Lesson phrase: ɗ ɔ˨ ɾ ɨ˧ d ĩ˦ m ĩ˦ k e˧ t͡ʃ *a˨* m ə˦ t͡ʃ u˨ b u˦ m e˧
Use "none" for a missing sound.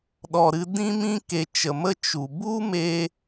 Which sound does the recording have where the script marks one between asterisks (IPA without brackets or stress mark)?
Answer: ə˨